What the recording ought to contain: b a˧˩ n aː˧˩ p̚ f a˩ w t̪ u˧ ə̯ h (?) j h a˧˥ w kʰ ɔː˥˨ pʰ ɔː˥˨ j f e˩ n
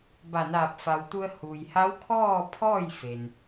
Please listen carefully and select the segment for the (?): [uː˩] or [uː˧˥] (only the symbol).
uː˩